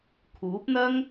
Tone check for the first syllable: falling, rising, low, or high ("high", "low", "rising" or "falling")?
rising